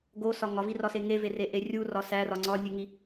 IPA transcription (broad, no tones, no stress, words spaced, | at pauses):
ɡosɒ ŋɒvirɒse ŋevereʔe rʲurɒ særɒ ŋ͡ǀɒnʲeŋi